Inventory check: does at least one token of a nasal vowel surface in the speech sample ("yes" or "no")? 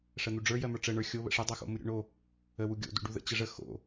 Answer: no